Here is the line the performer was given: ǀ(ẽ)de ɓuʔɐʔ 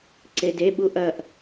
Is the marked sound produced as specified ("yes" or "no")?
no